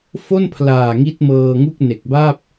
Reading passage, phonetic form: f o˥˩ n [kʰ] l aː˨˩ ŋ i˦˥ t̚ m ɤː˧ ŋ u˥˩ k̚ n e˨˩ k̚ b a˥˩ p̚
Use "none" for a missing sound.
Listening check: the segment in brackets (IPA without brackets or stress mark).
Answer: pʰ